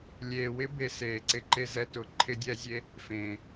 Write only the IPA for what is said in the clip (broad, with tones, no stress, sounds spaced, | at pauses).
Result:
lʲ eː˨ w ɪ˦ b e˧ s eː˨ ǀ ɪ˦ ǃ e˦ z ɛ˧ t ʊ˨ ǃʰ ɪ˦ dʲ ɛ˦ zʲ e˦ | f ẽː˨